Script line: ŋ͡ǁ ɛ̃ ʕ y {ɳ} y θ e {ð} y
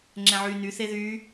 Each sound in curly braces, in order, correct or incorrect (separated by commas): incorrect, correct